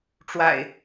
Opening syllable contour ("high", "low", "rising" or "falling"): low